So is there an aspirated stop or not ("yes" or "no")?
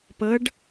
no